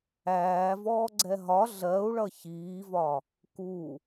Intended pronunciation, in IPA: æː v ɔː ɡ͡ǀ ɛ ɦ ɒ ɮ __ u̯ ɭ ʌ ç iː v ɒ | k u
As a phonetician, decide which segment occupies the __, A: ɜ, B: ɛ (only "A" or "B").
A